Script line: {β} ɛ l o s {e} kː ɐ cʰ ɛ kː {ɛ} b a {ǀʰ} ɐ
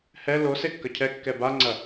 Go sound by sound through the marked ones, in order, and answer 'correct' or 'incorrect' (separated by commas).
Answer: incorrect, correct, correct, incorrect